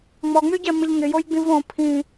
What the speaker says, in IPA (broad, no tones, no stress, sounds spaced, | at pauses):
ŋ͡m ɔ ŋ͡m y ɟ ɛ m ɪ ʎ ŋ ɪ j o j ɡ͡b ĩ v õ pʰ ĩ